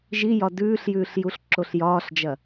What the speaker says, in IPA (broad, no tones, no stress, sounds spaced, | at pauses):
ʒ i j ɒ d ʉː ɬ j ʉː ɬ j u ɬ ǁ o ɬ j ɒː ɬ d͡ʒ ɐ